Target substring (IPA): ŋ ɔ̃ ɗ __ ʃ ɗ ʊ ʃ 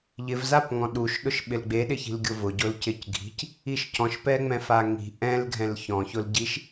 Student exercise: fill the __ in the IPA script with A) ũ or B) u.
B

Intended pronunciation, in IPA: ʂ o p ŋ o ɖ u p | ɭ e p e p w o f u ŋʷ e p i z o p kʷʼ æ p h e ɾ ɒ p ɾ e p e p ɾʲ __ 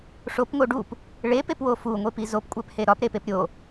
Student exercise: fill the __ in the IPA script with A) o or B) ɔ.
A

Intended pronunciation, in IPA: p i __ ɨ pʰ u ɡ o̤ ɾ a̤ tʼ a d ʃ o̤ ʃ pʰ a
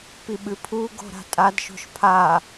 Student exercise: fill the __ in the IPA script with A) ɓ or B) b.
A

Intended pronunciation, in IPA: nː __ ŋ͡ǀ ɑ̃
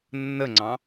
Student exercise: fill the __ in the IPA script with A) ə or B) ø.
A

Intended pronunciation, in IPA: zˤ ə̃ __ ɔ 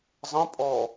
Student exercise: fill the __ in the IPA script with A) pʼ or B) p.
A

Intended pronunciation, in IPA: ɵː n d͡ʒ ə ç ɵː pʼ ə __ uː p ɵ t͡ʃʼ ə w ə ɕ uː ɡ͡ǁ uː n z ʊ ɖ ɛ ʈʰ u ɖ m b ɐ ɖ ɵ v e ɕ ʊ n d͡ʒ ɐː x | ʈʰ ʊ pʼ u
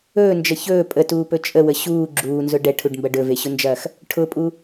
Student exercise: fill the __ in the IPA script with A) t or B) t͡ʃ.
A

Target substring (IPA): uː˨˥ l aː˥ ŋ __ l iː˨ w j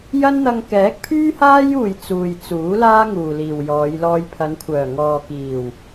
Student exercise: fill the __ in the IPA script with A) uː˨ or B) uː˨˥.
A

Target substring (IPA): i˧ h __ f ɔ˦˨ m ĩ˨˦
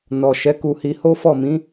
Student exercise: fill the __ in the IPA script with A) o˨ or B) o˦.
B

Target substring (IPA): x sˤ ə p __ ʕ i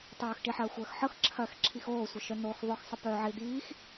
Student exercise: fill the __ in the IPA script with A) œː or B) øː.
A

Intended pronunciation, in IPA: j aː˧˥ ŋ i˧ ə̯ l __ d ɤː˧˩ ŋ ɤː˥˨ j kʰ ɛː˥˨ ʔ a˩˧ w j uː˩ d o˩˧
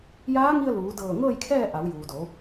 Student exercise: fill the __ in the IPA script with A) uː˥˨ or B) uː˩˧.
B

